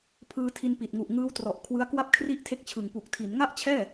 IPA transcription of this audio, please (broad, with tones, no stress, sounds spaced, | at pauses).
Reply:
pʰ ɯː˧ tʰ i˧ n p i˨˩ t̚ ŋ u˨˩ ʔ ŋ ɯː˦˥ w t r ɔ˨˩ ʔ kʰ w ɯ˦˥ a̯ k w a˥˩ p̚ kʰ r i˥˩ ʔ tʰ e˦˥ k̚ t͡ɕʰ ɯ˨˩ ŋ p u˨˩ k̚ tʰ i˩˦ n ŋ a˥˩ ʔ t͡ɕʰ ɛː˥˩